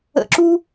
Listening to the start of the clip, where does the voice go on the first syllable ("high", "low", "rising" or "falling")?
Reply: falling